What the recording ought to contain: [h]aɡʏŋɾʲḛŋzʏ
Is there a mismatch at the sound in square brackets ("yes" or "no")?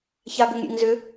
yes